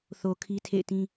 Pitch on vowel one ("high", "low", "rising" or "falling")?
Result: low